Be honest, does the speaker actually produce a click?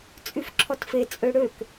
yes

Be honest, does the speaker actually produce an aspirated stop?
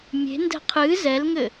yes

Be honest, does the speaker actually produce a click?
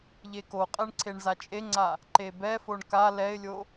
yes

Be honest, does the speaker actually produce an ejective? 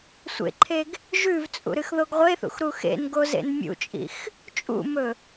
yes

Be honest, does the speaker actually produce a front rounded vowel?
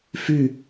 yes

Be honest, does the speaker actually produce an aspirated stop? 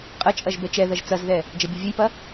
no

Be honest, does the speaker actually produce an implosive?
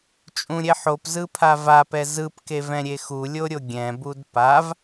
no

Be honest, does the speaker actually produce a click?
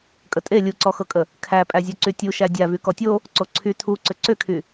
yes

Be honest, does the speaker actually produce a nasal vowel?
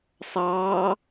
no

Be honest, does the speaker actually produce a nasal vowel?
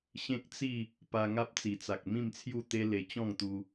yes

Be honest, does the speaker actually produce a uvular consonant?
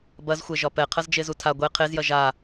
yes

